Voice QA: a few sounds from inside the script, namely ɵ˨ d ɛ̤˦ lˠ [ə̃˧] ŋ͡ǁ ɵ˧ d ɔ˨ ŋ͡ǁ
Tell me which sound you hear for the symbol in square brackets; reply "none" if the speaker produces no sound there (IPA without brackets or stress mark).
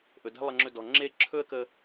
ə˧